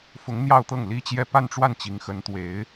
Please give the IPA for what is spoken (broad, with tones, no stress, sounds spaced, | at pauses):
f ʊ˧˥ ŋ n̪ j ɑ˥˧ ʊ̯ t̪ ɤ˥˩ ŋ l i˥ t͡ɕ j ɛ˥˧ p a˥˧ n ʈ͡ʂ w a˥˩ n t͡ɕ i˧˥ ŋ x ə˧˥ n t̪ w e˧˥ ɪ̯